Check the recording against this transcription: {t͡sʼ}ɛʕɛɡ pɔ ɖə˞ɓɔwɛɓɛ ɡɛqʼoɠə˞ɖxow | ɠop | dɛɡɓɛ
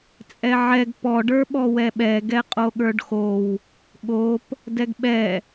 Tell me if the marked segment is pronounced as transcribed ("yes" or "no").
yes